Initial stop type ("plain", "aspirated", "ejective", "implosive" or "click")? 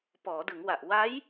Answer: plain